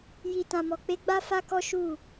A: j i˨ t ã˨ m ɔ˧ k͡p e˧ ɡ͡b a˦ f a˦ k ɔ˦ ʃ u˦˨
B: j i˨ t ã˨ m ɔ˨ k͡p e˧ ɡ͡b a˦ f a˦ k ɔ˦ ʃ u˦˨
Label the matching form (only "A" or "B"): B